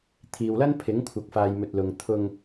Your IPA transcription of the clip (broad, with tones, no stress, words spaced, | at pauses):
t̪ʰiː˨wlɐ˥npʰɪ˨˥ŋ kʷʰɐ˨k̚faː˨j mɵ˨t̚lʊ˨ŋ t̪ʰʊ˧ŋ